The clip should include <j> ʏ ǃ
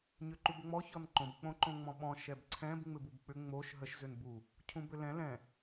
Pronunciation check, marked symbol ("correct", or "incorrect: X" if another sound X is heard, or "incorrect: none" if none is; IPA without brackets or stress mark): incorrect: ɲ